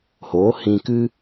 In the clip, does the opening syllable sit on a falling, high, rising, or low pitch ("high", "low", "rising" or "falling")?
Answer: rising